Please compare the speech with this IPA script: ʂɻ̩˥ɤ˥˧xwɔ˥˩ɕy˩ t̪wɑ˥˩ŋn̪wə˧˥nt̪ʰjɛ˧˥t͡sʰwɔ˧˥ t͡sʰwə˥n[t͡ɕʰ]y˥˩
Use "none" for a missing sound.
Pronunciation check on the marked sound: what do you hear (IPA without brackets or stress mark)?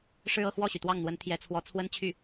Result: t͡ɕʰ